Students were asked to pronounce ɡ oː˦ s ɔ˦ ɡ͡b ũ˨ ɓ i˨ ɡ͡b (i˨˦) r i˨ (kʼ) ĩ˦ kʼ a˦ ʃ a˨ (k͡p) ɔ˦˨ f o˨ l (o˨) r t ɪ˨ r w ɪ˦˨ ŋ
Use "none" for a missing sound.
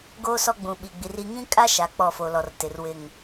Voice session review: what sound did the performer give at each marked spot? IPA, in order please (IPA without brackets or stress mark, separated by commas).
i˨, ŋ, k͡p, ɔ˨